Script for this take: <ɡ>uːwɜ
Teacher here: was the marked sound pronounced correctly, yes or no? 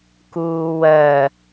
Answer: no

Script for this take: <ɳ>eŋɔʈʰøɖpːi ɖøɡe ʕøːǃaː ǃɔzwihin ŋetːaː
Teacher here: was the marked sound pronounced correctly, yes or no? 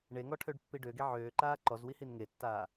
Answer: yes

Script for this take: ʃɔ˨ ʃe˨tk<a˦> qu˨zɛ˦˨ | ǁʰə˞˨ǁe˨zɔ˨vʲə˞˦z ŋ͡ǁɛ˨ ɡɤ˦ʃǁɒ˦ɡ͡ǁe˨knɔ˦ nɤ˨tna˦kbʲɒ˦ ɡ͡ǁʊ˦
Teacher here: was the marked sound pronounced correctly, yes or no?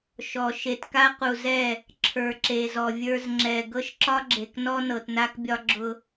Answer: yes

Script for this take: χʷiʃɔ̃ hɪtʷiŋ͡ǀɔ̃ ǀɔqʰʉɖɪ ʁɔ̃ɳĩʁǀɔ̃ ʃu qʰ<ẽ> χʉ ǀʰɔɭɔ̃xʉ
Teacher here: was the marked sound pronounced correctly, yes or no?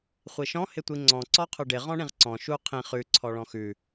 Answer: no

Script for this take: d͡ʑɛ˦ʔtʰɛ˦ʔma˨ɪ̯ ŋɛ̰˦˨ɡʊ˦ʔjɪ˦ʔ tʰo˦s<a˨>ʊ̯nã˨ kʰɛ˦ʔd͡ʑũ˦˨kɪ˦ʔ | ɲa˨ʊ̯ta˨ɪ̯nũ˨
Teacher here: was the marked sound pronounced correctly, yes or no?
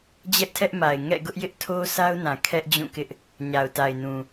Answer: no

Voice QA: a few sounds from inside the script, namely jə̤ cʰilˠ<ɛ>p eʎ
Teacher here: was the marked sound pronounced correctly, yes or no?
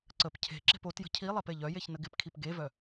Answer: yes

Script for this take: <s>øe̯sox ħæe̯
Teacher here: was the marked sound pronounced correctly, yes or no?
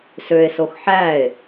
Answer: yes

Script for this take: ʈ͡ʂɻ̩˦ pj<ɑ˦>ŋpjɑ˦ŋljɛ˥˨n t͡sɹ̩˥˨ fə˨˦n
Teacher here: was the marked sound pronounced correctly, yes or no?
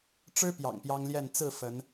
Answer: no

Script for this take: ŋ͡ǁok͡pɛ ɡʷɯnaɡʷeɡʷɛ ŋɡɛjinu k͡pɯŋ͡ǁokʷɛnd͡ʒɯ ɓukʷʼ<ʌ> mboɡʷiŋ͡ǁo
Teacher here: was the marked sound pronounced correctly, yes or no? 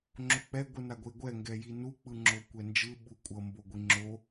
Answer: yes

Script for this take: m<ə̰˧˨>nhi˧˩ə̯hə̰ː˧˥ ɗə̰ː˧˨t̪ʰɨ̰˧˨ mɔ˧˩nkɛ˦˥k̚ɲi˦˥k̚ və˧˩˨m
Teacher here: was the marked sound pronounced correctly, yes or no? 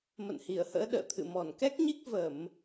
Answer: yes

